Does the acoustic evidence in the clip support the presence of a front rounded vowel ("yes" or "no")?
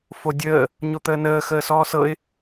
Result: no